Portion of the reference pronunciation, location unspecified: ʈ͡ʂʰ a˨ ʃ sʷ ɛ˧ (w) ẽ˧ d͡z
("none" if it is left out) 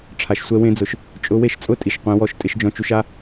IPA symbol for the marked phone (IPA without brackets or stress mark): w